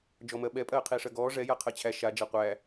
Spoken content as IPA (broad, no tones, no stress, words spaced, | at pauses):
d͡ʒɔmɜɓɛ pʼɜːqʰiːʂɜɡɔː ʐɛ jaqʰɜt͡ɕʰæ ʃa d͡ʒaqʷæ